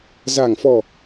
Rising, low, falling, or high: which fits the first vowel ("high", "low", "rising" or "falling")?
low